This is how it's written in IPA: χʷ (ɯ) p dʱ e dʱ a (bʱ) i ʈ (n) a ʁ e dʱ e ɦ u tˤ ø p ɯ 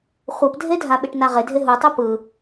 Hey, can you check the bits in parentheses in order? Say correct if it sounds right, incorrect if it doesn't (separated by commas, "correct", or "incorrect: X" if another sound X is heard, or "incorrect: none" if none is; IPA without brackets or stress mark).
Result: incorrect: ɤ, incorrect: ɓ, correct